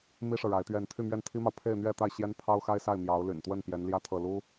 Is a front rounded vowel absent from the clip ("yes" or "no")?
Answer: no